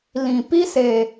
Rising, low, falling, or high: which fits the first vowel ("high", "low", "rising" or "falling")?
low